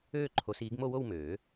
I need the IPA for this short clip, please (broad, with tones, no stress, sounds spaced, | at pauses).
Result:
øː˥˧ ǃʰ o˨˦ s iː˨˦ ɡ m o˥˧ w o˥˧ w m øː˨˩˦